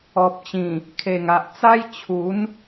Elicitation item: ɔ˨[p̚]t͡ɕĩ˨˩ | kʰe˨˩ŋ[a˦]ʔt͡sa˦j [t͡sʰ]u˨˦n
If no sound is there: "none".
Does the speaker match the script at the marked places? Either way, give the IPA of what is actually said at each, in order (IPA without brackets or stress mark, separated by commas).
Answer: p̚, a˨, t͡ɕʰ